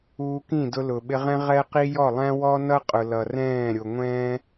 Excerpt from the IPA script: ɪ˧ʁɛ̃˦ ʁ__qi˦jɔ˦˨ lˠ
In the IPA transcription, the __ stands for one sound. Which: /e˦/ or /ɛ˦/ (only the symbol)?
ɛ˦